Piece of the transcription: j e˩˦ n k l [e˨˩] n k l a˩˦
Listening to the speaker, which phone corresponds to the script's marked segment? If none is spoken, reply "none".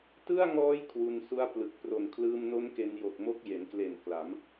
e˨˩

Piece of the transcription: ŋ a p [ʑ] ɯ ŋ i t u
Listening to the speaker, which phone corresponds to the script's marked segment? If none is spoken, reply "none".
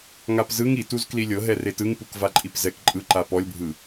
z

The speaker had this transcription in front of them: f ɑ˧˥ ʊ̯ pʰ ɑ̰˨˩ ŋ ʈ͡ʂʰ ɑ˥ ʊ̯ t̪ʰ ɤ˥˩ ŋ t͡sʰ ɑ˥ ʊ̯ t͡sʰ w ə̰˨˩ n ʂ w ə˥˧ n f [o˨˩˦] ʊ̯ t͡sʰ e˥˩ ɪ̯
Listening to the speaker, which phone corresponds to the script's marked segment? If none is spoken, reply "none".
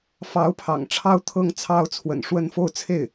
o˥˧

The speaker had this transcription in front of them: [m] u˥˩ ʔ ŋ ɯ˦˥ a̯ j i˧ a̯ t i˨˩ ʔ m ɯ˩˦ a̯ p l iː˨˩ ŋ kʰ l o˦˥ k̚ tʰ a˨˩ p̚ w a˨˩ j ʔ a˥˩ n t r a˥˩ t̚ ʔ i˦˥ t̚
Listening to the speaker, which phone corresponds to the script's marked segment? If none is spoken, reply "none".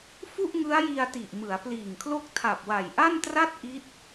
f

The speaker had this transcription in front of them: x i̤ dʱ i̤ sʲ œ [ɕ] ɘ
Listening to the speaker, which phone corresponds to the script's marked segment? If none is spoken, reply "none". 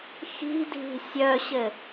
ɕ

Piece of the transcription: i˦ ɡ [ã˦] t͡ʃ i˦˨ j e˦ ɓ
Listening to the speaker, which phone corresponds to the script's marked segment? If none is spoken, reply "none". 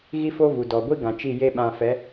ã˨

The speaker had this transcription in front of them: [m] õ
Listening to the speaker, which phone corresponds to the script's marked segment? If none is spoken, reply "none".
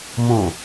m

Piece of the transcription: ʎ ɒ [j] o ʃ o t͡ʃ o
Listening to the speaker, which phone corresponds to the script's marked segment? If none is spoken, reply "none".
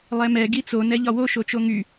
w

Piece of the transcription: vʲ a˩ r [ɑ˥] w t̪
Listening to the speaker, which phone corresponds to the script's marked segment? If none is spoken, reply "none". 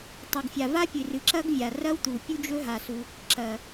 ɐ˥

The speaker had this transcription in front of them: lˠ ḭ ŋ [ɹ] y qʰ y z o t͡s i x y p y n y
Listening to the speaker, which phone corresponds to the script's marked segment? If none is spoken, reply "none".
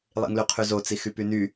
l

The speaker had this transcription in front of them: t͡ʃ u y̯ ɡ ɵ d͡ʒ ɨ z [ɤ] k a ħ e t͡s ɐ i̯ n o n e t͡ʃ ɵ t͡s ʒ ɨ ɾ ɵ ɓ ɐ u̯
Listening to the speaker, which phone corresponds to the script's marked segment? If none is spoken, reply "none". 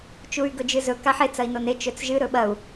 ɵ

